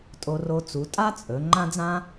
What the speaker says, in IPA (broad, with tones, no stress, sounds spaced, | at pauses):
tʼ o˧ r o˧ t͡s u˩˧ tʼ a˥ t͡sʼ ɵ˩˧ ŋ͡ǃ ã˥ d͡z ã˥